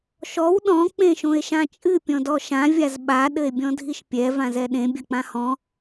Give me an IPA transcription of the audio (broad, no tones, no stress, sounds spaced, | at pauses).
ʃ ɔ w ɗ ɔ̃ k͡p ẽ ʃ õ e̯ ʃ ã t͡ʃʼ ɨ pʲ ɔ̃ d ɔ ʃ ã vʲ a z ɓ a ɗ ɘ e̯ bʲ ɔ̃ dʱ i ʃ pʲ ɛ v ã z ɛ ɗ ẽ bʲ ɐ k͡p ã h ɔ̃